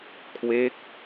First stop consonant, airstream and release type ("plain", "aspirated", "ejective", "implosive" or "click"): aspirated